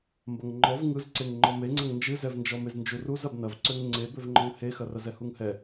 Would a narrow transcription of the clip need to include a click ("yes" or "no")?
yes